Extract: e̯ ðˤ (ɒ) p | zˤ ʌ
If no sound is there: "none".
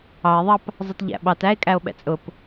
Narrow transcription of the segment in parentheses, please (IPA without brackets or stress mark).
ɑ